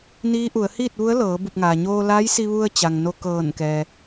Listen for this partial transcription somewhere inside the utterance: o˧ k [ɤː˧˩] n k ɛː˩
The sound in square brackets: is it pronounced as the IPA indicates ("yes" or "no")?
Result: yes